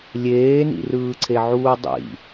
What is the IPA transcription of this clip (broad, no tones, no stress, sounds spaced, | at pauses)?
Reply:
lʲ eː n ḭ r ɯː ǀʰ e ʕ uː dˤ ḭ